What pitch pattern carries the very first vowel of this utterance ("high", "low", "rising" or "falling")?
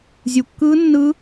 low